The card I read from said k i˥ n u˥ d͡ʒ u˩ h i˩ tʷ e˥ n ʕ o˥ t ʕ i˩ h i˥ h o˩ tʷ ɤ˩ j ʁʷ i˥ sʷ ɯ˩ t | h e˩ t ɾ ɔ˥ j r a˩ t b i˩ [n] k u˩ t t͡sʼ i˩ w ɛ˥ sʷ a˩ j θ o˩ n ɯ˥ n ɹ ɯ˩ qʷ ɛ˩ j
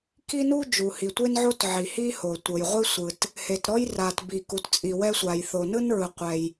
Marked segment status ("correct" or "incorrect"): incorrect